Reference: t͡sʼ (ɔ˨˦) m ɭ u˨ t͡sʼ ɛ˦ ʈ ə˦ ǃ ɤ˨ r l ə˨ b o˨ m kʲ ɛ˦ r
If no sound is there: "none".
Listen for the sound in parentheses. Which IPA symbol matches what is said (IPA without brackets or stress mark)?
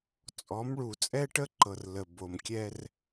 ɔ˨˦